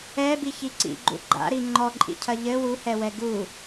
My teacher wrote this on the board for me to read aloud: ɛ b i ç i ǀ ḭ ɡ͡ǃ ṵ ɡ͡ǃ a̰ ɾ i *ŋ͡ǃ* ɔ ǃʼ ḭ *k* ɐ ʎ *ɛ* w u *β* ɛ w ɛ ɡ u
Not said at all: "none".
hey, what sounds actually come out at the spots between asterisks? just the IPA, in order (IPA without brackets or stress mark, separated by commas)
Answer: ŋ͡ǃ, cʰ, ɘ, h